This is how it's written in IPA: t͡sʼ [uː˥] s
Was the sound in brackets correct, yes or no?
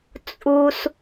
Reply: yes